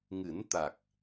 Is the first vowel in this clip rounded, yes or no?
no